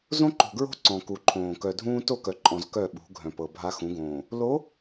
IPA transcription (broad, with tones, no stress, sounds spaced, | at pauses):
z õ˦ ǃ o̤˨ ɡ ɹ o̤˦ ǀ ɔ̃˨ k u˨ ǃʰ õː˨ k œ˨ dʱ ũː˦ t o˦˨ k œ˨ ǃʼ ɔ̃˨ z k œ˦˨ ɓ ṳ˨˦ ɡʱ œ̃˨ p ɤ˨ bʱ a˦ x ũ˨˦ ɡ õː˨ | l o˨˦